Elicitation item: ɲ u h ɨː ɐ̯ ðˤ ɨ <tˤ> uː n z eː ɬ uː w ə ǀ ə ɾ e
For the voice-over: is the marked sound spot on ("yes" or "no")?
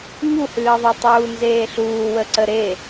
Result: yes